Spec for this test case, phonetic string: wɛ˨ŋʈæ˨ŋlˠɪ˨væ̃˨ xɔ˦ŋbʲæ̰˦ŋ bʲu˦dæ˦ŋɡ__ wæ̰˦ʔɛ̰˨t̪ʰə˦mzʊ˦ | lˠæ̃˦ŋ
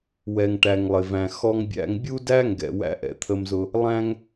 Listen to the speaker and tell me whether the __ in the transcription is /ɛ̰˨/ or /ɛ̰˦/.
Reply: ɛ̰˨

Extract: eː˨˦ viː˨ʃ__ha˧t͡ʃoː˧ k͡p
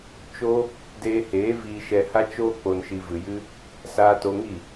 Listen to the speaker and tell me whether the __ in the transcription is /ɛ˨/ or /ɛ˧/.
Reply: ɛ˨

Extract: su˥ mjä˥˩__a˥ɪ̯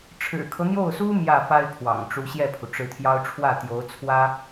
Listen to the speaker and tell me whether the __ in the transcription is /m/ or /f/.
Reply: f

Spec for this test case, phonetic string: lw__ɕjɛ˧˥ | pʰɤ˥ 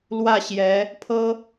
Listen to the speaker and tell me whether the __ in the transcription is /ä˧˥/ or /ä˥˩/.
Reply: ä˥˩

